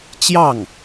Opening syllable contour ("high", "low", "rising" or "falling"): falling